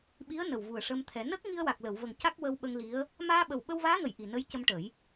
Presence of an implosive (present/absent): present